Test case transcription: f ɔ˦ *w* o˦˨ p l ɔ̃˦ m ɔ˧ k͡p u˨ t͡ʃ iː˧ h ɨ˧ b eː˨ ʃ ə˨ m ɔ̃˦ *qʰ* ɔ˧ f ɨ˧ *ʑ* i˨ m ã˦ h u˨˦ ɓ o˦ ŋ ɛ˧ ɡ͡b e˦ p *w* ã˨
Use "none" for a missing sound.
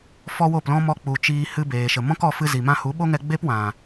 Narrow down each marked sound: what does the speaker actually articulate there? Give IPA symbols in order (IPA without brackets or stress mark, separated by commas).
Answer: w, k, z, w